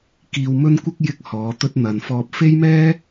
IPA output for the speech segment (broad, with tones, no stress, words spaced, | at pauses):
kiː˧wmɵ˥nkʷɪ˥k̚ jɪ˥k̚hɔː˨˧t̪ɵ˥t̚n̪ɐ˧n fɔː˧p̚fe˥jmɛː˥